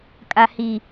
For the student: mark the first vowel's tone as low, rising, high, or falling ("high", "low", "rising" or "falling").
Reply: high